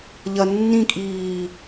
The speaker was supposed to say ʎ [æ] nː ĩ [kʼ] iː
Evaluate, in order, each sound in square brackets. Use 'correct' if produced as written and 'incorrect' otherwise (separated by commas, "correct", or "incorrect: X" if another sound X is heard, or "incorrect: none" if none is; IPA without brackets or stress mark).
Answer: incorrect: ɐ, correct